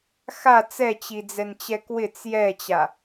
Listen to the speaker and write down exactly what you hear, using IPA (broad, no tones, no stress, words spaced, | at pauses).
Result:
xa t͡sɛt͡ɕid͡zɛnt͡ɕɛ kwɪt͡s jɛt͡ɕa